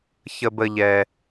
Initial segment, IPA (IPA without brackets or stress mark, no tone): ç